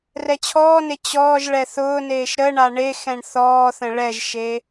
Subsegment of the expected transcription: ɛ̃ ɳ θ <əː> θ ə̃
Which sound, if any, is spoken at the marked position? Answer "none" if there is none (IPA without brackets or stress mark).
ɔː